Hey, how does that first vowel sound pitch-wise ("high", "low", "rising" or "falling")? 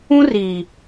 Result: high